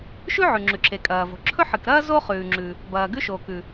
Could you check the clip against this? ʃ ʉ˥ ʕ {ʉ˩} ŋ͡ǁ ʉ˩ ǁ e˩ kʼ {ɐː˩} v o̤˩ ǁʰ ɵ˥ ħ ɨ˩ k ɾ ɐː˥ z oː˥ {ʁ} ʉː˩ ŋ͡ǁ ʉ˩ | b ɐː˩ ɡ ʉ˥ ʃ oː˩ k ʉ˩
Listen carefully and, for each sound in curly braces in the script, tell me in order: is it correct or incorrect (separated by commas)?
correct, correct, incorrect